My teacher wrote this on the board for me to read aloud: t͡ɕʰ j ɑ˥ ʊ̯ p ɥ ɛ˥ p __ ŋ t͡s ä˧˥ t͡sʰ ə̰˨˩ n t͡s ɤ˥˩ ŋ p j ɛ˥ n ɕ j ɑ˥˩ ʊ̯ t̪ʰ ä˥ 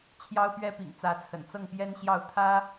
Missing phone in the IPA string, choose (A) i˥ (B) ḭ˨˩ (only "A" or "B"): B